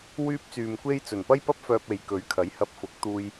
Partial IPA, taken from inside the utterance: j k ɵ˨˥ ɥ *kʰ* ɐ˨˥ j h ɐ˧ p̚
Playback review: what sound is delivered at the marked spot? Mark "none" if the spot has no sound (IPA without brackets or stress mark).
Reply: kʰ